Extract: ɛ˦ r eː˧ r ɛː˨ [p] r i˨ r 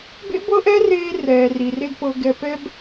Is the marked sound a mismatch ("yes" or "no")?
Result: yes